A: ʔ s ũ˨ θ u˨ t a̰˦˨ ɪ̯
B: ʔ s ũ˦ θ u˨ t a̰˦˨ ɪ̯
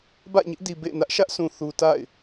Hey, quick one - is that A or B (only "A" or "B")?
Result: A